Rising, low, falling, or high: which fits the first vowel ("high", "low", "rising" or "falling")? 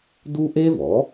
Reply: high